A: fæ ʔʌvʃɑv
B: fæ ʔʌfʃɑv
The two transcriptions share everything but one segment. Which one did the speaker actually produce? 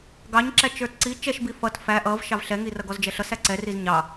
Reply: A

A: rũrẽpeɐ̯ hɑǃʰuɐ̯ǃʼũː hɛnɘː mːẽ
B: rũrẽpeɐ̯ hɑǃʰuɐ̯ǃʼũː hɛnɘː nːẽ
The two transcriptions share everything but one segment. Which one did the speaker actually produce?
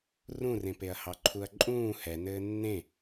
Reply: B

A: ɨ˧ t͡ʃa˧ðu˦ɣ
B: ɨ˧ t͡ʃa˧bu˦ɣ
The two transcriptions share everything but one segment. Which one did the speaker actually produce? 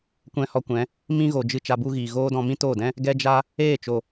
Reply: B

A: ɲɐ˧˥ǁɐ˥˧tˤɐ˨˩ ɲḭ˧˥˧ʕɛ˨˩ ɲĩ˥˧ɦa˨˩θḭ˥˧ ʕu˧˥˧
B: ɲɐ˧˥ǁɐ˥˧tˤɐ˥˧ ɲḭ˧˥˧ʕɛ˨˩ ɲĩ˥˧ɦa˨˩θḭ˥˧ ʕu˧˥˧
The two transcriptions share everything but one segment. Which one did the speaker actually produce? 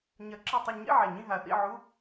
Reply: B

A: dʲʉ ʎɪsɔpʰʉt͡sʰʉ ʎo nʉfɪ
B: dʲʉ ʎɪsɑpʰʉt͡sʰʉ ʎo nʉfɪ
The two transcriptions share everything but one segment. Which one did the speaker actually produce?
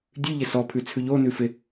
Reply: A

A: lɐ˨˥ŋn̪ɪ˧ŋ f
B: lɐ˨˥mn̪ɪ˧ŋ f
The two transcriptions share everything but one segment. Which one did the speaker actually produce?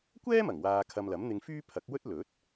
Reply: B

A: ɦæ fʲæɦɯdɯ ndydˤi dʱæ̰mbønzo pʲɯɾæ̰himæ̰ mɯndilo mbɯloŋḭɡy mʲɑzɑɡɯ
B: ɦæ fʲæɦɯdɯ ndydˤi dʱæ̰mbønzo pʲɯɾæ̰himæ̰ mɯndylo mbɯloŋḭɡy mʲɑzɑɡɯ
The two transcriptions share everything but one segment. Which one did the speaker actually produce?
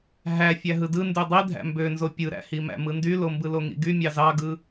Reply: B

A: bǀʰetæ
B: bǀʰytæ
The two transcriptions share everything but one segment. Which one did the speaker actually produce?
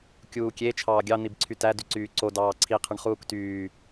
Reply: B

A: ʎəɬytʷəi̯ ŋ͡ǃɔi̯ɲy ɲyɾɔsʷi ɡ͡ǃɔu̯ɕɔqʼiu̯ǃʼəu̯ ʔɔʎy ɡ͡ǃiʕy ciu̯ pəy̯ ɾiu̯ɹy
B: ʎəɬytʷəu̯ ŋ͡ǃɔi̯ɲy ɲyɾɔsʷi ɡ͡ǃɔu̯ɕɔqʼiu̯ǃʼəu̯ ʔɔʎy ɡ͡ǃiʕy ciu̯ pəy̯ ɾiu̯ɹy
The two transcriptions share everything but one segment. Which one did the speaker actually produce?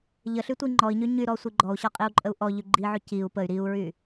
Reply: A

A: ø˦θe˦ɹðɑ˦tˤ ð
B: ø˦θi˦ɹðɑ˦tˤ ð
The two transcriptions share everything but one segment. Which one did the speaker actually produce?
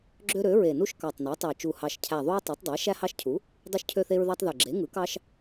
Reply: A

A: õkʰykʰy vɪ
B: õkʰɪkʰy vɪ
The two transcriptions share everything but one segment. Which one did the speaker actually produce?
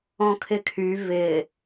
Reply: B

